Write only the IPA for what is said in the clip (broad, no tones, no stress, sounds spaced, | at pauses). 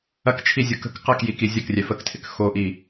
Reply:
ɐ k t͡ʃʰ i zʲ o k ə̤ k q ɐ k j i k i zʲ ə k rʲ ɛ f ə k tʰ ɪ k x o ʔ i